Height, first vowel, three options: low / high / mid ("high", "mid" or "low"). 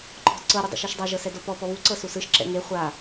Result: mid